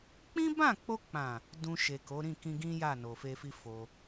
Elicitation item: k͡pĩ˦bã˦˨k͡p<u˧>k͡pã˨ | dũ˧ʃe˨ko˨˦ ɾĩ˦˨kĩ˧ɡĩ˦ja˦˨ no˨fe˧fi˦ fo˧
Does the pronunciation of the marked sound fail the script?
yes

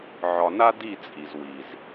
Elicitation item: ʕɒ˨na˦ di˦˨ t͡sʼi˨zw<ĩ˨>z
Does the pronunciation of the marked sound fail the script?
yes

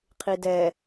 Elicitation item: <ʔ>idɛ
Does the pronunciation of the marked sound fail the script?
yes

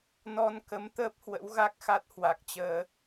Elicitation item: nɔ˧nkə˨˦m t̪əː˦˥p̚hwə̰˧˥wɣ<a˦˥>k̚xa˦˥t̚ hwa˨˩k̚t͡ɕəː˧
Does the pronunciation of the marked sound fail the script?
no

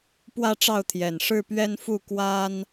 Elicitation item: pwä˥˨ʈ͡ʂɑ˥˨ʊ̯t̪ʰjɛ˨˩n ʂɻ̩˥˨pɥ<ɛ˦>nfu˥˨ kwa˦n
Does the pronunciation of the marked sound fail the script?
no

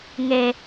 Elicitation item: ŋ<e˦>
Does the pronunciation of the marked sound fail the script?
no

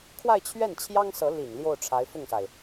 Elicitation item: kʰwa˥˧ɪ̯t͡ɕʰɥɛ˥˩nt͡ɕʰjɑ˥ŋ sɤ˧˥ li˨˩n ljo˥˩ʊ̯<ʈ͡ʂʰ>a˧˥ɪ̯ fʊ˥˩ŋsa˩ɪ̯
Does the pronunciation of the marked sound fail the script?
no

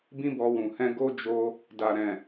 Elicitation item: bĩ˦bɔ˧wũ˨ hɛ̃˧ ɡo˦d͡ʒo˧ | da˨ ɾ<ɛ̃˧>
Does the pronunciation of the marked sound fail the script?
yes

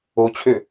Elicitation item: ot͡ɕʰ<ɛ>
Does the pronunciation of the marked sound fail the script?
yes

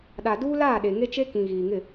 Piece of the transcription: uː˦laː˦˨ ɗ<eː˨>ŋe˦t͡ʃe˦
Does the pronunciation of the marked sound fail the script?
yes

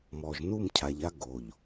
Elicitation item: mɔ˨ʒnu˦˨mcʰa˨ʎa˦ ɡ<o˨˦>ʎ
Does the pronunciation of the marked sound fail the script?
yes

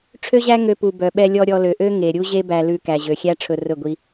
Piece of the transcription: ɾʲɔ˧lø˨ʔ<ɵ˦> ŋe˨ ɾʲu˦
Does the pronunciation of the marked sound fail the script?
yes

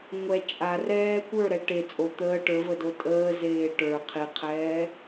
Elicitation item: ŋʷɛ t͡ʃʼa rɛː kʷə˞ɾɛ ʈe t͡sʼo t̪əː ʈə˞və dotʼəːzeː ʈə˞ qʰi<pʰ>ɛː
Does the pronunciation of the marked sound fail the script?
yes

